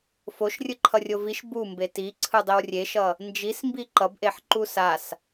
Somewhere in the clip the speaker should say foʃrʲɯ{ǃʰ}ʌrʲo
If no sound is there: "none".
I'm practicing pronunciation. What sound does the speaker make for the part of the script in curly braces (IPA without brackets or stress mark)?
ǃʰ